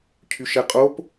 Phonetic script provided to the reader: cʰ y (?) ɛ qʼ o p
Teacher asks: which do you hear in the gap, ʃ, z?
ʃ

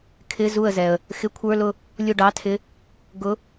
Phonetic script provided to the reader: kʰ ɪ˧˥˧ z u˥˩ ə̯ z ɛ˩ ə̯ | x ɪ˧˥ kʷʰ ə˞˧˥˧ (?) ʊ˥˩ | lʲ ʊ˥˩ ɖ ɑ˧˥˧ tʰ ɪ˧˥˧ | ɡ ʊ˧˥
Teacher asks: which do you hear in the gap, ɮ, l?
l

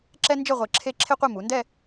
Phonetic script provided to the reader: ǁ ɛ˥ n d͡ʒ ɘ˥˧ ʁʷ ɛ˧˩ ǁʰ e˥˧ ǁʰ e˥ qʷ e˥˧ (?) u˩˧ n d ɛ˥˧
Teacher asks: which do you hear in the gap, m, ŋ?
m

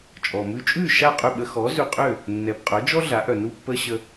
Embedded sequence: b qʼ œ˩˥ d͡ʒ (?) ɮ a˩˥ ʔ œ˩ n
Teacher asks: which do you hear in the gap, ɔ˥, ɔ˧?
ɔ˥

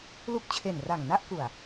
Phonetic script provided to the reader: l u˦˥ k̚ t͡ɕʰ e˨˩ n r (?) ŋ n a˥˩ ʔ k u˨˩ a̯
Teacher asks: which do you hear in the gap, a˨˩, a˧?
a˨˩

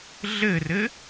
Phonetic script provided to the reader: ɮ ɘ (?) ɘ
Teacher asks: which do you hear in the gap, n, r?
r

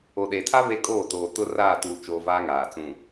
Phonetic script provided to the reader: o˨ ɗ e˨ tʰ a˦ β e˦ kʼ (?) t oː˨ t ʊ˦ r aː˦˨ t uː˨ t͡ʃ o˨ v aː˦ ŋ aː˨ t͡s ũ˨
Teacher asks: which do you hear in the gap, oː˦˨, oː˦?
oː˦˨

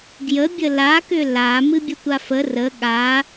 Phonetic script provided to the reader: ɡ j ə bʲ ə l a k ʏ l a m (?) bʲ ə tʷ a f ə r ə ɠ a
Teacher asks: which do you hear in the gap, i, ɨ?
ɨ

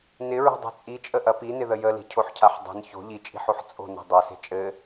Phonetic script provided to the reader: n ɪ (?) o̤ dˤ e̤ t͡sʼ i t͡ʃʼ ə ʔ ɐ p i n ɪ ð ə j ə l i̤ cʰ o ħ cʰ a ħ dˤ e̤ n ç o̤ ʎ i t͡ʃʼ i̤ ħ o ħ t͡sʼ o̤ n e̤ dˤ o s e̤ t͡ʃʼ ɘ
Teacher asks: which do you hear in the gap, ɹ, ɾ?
ɹ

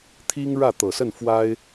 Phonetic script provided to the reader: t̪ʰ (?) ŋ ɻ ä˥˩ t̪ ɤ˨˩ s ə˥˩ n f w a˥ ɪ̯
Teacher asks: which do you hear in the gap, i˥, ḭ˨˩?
i˥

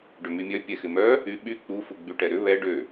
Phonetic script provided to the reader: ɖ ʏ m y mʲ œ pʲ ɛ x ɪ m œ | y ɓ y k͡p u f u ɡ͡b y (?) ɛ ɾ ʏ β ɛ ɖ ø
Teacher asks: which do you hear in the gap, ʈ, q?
ʈ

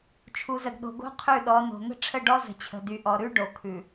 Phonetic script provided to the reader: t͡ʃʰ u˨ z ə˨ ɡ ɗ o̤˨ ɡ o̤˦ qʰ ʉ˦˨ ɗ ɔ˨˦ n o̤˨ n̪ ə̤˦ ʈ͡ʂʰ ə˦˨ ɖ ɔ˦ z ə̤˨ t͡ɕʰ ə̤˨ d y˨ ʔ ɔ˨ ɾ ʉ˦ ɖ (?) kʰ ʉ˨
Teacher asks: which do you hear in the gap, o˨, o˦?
o˨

